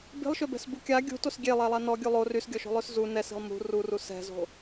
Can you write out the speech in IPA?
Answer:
b i̤ lˠ ʃ ø b ɛ̤ s b u kʲ a ɡʲ ṳ t o s ɡʲ e lˠ ɛ lˠ a n ɔ ɡʲ u lˠ o r y s ɡʲ ɔ ʃ o̤ lˠ ø s z u n ɛ s i̤ lˠ m ṳ r u r u s ɛ̤ z o̤

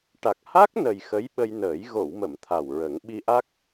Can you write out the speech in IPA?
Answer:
ʈ a˨˩ k̚ h a˦˥ k̚ n ə˨˩ j x ə˧˥ j ɓ ə˧ j n əː˨˩˦ j ɣ o˨˩˨ w m ə˨˩˨ m t̪ʰ a˨˩ w ɹ ə˨˩˦ ŋ ɓ i˧ ʔ a˦˥ k̚

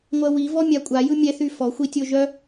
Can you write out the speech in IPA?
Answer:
ŋʷ ɜ w i v ɔ mʲ a kʷʼ a j ɯ mʲ ɛ θ y f ɔ xʷ i tʲ o ʒ œ

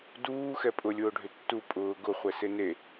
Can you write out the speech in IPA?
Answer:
d uː x ɛ pʼ ʊ lʲ ʊː ɖʱ ʏ tː u pʼ ʊː ɡ ʊ χʷ ɛ s e n e

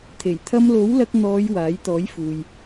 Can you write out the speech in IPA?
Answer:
t̪ʰ e˨˩ j t̪ʰ ɐ˧ m l o˨˥ w l ɐ˧ k̚ n̪ ɔː˨˧ j w aː˨˥ j t̪ ɔː˨˥ j f uː˨ j

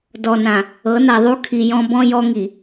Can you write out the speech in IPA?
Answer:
d ɔ˨ n ã˨ | ɤ˨˦ n a˨ ðˤ u˦ kʰ i˨ j ɔ̃˦ b ɔ̃˦ j ɔ˦ ŋ i˨

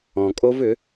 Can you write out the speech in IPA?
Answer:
ɔ̃˨ kʼ o˦ v ʏ˨˦

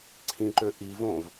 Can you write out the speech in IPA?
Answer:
ǀʰ ĩ ǃ ø ʔ i v õ v

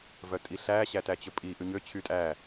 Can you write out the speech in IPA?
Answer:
v œ tʼ i ɬ æ ɕ æ t æ t͡ɕ ɵ pʼ i ʔ ʉ ɲ ø t͡ɕʰ y tʼ æ

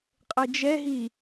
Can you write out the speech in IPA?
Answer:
qʼ ɘ d͡ʒ ɛ ɦ i

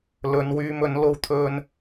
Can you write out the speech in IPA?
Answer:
l ɵ˨˧ n w yː˧ m ɵ˨˥ n l o˧ w t̪ʰ ɵ˧ n

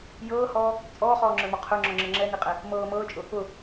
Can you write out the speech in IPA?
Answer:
j ɤː h ɔː | t͡sʼ ɔː χ ɔː ŋ͡ǁ ə˞ m ɔ qʰ ə˞ ŋ͡ǁ ɔ ŋ͡ǁ ɤ ŋ͡ǁ ɛ n i qʼ ɛ | m ɤː m ɤː t͡ʃʼ ʊ | ʊ

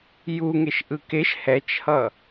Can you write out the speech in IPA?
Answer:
j u ŋ e ʃ ʔ ɯ k e ʃ h ɛ t͡ʃ h ʌ

